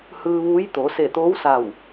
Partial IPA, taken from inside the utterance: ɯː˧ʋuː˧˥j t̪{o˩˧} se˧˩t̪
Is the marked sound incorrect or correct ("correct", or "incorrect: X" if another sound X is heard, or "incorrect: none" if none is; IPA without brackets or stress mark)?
correct